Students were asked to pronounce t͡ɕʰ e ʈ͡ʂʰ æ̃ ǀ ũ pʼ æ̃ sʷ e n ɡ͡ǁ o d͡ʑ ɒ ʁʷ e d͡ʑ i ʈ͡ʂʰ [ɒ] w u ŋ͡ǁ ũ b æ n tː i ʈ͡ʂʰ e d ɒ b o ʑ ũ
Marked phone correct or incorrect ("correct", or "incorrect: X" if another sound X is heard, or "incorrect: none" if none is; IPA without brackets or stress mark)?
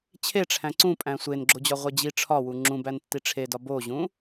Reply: correct